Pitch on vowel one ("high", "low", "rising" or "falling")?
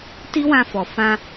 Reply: high